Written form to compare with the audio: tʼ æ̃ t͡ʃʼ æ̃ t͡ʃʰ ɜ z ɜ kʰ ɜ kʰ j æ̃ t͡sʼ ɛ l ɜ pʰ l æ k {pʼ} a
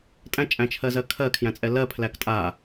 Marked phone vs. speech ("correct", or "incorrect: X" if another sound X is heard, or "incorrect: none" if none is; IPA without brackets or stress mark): incorrect: tʼ